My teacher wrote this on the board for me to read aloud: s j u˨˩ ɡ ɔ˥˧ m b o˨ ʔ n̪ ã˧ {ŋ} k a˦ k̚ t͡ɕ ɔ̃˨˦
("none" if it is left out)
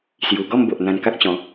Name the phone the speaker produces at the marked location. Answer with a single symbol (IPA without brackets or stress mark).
n